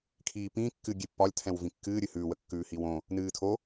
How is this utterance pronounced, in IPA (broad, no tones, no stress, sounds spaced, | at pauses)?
kʰ iː p ĩ kː ɨ ɡʲ e pː ɒ lʲ tʰ ɛ̃ w v ĩ kː ɨː ɾʲ ɨ h ʉ w ə kː ʉː h i w õ | n ɨː tʰ o